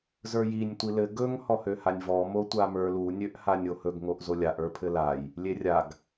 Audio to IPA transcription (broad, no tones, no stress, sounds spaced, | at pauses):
z ə˞ j i nʲ tʷ i l ɘ ɡ ɵ ŋ h ɔ h ø h a nʲ v ɔ m o tʷ a m ə˞ l u nʲ ø ʔ h a nʲ o h ɵ ɡ ŋ o ʔ z o lʲ a ʔ ə˞ pʰ ɘ l a j | lʲ e rʲ a ɡ